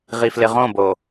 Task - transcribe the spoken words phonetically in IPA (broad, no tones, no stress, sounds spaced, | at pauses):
ʁ i f l ɪ ʁ õ b o